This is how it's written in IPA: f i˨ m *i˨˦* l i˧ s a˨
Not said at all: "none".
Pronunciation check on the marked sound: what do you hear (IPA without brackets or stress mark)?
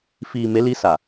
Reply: e˨˦